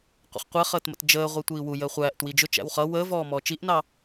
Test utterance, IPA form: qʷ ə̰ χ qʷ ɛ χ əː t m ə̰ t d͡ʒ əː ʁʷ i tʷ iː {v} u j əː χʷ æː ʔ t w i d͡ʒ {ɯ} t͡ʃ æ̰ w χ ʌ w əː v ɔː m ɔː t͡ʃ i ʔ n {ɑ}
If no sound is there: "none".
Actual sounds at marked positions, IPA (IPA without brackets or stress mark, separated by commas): w, ʊ, ɑ